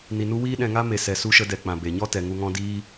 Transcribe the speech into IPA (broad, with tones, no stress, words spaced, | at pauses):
ni˧nu˦ wiː˦ɗɛ̃˧ŋa˦ me˧ sɛ˨su˧ʃə˧dɛ˨ k͡pã˨be˨ɲɔ˦ tɛ˨ŋu˧ŋɔ̃˦diː˦